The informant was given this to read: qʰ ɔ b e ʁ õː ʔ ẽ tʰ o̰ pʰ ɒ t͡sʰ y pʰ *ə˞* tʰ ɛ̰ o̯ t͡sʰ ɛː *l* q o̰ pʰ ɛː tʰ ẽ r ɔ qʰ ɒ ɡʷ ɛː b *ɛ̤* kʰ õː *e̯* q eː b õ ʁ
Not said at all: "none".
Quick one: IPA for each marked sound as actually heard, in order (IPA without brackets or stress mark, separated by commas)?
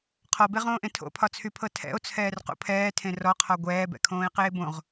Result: ɤ, r, ɛ̰, e̯